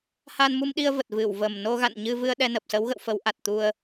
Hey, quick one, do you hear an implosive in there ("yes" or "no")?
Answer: yes